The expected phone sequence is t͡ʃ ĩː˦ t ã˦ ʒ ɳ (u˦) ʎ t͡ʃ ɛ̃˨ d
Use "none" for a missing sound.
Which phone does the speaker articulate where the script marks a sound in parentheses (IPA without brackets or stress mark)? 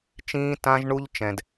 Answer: u˦